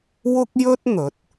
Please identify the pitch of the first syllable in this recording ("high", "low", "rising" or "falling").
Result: high